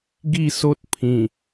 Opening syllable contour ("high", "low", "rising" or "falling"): falling